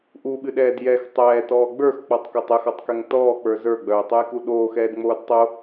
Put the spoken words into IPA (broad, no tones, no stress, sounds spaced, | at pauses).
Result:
ʔ u ɓ ɨ ɗ ɛː d j ɛ x tˤ ɛː t ɔː ɡ͡b ə˞ x k͡p ɔ tˤ k o tˤ ɛ x ɔ tˤ k ɛ ŋ t ɔː k͡p ə˞ z ə˞ ɡ͡b œː tˤ o j k u ɗ oː x ɛː d ŋ͡m oː d tˤ o